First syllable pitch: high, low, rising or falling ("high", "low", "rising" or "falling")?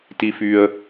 low